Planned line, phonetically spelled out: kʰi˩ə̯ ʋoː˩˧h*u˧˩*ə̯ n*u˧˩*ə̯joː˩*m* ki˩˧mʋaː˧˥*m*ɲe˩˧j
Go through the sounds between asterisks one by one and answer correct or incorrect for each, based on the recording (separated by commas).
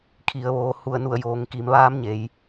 correct, correct, incorrect, correct